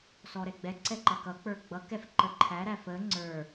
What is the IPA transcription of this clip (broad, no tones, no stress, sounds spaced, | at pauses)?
s ɔ ɾ ɛ ɡ͡b ɛ ǀ ɛ ǃ ʌ k ʌ k͡p ə˞ ɡ͡b ʌ k ɛ f ǃ ə ǃʰ æ ɾ æ f ə ŋ͡ǀ ə˞